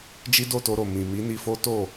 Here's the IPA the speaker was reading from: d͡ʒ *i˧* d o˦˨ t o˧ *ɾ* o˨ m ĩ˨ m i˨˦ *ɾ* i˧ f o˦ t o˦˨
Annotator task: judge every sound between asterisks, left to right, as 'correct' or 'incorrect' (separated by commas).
incorrect, correct, incorrect